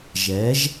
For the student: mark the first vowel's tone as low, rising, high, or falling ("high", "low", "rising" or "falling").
rising